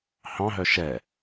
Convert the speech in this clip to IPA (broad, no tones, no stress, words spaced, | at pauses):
hɑ̃ɦœ ʃɛ